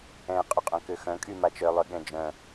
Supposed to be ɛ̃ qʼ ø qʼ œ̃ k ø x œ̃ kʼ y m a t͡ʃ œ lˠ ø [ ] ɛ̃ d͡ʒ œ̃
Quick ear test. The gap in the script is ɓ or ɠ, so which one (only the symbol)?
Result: ɠ